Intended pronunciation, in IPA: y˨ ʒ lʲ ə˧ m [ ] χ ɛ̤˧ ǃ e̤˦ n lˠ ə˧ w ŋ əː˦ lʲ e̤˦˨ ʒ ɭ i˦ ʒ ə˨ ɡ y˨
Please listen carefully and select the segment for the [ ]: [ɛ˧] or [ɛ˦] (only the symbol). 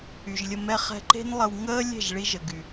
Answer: ɛ˦